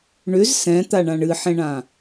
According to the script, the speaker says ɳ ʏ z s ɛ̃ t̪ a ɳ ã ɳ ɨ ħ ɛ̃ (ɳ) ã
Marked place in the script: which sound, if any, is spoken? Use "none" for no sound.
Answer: ɳ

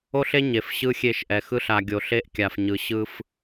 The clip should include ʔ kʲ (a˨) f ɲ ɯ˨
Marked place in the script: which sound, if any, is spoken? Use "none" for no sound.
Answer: a˨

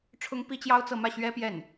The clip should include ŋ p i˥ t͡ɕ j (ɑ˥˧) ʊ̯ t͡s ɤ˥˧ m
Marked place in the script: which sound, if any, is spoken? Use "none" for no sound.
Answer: ɑ˥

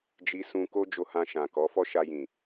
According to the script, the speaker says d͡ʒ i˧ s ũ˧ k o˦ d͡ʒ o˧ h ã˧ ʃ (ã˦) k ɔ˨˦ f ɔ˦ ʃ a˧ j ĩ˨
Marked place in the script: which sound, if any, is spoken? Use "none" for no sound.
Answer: ã˨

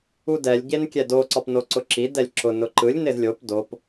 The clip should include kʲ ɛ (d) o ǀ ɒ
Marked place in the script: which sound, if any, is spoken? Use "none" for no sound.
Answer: d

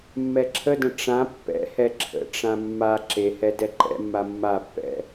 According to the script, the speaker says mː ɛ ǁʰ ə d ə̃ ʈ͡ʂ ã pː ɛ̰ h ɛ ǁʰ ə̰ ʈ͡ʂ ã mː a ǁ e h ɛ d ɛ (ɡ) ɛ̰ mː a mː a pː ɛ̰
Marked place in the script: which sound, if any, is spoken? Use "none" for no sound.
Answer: ǃ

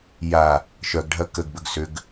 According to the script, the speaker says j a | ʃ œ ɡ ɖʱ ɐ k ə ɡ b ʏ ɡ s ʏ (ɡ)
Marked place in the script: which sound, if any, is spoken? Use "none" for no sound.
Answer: ɡ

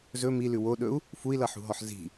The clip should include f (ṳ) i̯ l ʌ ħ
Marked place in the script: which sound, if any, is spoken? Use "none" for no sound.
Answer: u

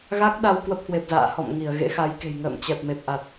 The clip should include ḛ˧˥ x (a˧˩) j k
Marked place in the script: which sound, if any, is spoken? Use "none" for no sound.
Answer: a˨˦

